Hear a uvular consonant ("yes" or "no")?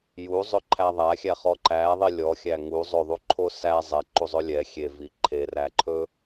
yes